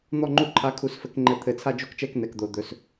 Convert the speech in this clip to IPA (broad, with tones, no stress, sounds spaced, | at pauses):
n̪ ɔ˦˨ ŋ͡ǃ u˦˨ ǃʰ a˨˥ kʰ u˨˥ s f ɘ˨˩˦ k ŋ͡ǃ ɘ˨˥ t̪ʰ ɘ˨˩˦ t͡sʰ a˦˨ d͡ʒ o˦˨ k t͡ʃ ɛ˦˨ k n ɛ˨˩ k d̪ o˨˩ d̪ ɵ˨˩ s